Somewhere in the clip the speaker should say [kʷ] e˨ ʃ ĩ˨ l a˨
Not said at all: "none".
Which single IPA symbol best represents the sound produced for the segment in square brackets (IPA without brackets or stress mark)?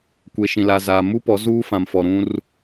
kʷ